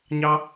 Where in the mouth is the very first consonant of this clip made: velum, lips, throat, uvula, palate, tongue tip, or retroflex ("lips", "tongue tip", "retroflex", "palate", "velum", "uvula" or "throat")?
palate